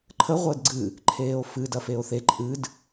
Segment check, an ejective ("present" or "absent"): present